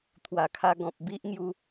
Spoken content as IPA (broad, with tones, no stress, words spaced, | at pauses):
t̪ʰwa˨˩kʰa˧ ɡɔ̃˨p̚ bi˦ʔŋju˧